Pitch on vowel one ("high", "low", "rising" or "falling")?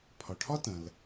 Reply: low